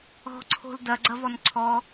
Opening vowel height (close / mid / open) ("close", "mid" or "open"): mid